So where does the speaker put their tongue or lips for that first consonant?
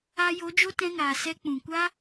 palate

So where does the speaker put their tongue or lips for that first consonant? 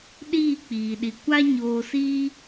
tongue tip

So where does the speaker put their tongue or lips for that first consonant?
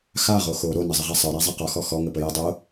velum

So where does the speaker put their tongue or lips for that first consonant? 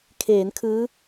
velum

